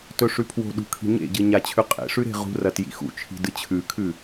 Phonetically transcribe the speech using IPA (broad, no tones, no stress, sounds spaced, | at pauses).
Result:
t ɵ ʂ ʉ pʰ w o̤ ɗ ṳ kʰ i̤ ɲ ḛ ɟ ɨ ɲ a t͡ɕʰ ʉ qʼ ḛ ʂ ʉ ɾ e̤ ʁ ṳ r ɐ t j ḭ x ṵ t͡ʃʰ i̤ d ɨ t͡ɕʰ ʉ kʰ ʉ